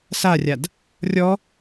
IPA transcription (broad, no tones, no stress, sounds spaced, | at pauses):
s a rʲ a d | rʲ ɔ